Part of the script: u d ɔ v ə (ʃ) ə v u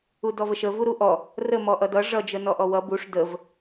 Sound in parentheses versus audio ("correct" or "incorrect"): correct